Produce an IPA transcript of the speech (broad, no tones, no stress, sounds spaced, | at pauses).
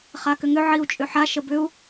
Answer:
χ a k ʏ ŋ ʏ ʕ i u̯ t͡ʃʼ ʏ ħ a ʃ ə b ʏ u̯